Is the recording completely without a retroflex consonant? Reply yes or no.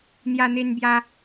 yes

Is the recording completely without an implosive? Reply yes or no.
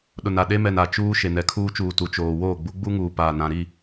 no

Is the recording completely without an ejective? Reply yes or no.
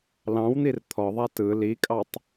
no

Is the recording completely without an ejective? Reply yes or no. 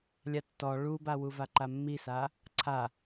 yes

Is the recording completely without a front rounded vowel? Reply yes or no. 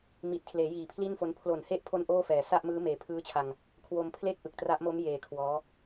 yes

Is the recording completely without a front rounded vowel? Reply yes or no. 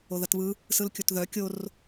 no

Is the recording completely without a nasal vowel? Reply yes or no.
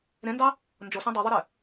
no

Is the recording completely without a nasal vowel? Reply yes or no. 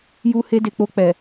yes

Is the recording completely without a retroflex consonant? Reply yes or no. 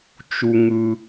yes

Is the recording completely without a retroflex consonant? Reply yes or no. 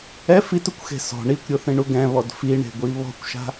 no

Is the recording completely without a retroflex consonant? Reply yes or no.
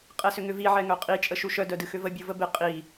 yes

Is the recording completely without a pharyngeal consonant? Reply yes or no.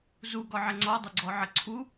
no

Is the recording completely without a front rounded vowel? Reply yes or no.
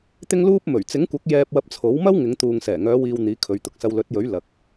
no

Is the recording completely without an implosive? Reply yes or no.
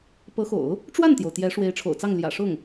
yes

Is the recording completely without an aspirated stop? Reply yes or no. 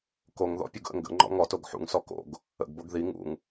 yes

